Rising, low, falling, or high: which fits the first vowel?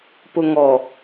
low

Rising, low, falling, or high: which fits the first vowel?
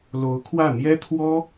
rising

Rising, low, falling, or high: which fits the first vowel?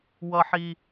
high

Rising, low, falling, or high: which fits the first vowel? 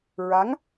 rising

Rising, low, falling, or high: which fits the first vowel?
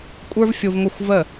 high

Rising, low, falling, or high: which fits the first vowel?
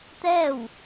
falling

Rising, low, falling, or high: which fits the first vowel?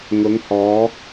rising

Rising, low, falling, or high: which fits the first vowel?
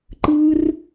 high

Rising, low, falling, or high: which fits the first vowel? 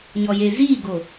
low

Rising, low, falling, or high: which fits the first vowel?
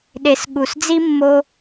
low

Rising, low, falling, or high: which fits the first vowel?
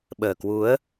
low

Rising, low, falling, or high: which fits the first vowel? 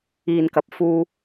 low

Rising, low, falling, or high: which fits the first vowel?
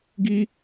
high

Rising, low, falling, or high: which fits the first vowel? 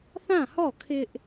falling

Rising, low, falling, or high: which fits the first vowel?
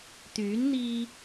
rising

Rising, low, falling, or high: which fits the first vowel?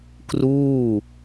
falling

